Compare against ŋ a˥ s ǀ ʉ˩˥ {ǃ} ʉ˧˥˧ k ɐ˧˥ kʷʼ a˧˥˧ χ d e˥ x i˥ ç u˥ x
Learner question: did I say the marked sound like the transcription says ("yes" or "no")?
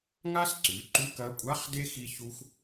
yes